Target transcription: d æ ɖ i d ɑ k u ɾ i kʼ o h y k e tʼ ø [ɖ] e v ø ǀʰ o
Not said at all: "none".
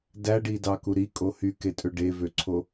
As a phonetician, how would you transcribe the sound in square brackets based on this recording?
ɖ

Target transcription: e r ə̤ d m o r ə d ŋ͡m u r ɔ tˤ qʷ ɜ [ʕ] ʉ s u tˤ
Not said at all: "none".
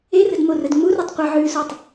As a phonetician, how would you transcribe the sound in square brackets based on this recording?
ʕ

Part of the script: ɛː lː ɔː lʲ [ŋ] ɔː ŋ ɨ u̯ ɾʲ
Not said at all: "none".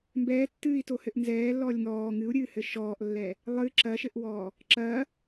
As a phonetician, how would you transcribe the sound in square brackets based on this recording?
ŋ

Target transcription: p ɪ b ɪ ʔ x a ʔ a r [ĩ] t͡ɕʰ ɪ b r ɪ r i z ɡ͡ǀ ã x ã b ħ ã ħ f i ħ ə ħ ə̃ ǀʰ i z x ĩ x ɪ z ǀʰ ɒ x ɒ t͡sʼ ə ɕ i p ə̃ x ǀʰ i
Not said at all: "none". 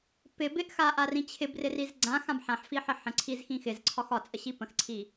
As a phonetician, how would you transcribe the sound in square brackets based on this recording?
ĩ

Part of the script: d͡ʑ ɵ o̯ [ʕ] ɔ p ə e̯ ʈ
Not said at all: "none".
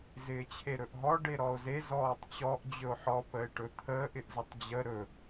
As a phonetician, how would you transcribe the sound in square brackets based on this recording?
ħ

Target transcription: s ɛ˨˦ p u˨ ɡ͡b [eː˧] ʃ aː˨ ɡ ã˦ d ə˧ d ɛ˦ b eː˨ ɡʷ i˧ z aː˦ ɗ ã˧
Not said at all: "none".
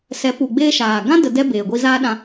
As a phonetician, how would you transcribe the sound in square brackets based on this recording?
eː˧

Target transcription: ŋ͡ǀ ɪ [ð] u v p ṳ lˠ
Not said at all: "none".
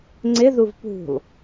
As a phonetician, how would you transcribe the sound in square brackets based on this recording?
ð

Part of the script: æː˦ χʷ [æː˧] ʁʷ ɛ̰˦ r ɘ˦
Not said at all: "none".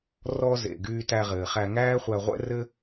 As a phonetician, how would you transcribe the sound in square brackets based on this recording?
æ˧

